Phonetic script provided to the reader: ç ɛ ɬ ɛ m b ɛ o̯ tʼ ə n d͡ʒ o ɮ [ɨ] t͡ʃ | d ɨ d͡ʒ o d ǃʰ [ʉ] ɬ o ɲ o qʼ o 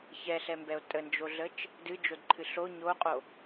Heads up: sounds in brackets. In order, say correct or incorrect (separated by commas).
incorrect, incorrect